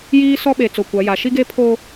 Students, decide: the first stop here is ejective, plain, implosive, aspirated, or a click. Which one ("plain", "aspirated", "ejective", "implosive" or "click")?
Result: implosive